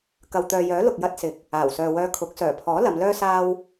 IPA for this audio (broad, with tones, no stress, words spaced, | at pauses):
kɐ˨wt̪œː˨jœː˨˥ lʊ˨k̚jɐ˧t̚sɪ˨k̚ | aː˨˩wsœː˨wœː˧kʰʊ˨˥k̚ sœː˨˩pʰɔː˨˥ lɐ˨˧mlœː˥saː˥w